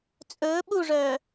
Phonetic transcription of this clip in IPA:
t͡sʼ ɵː ɓ u ʐ œː

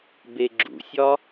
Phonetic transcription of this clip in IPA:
b e ɡ͡ǁ ṵ sʲ ɒ

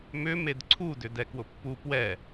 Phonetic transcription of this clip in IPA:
m ʏ m e d ǀʰ u d ʏ d ɛ k w ʊ pː u p w ɛ

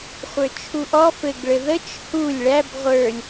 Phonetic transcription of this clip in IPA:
χʷ ə˞ t͡ʃʰ u ʔ ɔ f ɘ ɡ ɭ ɘ ð ə t͡ʃ h u lʲ ɭ æ b ʁʷ ə˞ lʲ

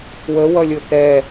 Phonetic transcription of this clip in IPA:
w ə w ʌ lʲ ʊ t̪ ɛ

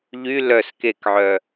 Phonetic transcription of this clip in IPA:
ʎ y l œ s k e k ʕ œ

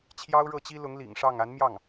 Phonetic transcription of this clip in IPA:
t͡ɕʰ j ɑ˥ ʊ̯ ɻ ɤ˥˩ t͡ɕ i˥ l ʊ˧˥ ŋ l ḭ˨˩ ŋ ʂ ɑ˥˩ ŋ a˧˥ n m j ɑ˥˩ ŋ

